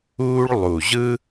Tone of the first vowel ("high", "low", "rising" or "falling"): high